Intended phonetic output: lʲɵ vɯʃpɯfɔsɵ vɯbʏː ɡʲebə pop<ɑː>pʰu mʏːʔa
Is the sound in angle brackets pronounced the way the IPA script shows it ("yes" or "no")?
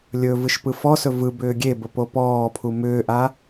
no